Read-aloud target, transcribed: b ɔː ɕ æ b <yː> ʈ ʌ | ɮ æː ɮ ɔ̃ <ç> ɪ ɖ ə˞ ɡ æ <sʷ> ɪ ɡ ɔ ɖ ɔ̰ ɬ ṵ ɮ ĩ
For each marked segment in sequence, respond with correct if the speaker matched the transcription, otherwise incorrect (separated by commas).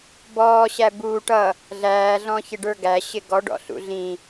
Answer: incorrect, correct, incorrect